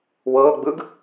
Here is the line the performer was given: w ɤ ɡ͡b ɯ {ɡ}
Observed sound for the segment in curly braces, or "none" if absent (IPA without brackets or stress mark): ɡ